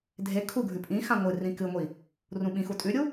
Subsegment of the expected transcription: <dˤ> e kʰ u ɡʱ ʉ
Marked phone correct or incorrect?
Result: incorrect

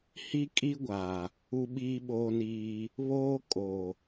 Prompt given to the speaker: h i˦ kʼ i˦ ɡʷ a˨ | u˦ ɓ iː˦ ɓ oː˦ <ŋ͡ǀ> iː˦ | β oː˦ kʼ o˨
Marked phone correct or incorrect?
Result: incorrect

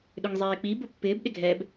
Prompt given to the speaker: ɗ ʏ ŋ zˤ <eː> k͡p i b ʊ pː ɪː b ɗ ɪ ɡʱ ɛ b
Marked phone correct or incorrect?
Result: correct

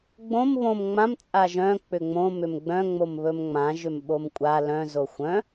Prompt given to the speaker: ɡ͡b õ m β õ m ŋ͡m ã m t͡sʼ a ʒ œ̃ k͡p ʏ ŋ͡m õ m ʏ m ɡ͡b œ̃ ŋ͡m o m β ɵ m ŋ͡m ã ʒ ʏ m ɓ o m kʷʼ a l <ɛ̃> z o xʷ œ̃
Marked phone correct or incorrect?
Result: incorrect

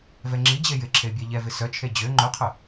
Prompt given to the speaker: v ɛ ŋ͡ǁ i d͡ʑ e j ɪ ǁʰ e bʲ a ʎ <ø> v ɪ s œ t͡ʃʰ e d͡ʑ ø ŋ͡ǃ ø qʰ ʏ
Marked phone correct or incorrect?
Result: incorrect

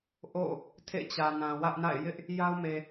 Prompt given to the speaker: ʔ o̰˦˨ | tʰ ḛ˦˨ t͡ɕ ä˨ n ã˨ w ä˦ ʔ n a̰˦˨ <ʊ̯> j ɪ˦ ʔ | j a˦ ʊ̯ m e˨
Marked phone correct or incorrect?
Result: incorrect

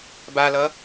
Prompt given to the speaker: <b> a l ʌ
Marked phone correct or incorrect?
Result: correct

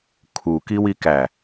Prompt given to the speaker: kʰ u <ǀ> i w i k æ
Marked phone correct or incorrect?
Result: incorrect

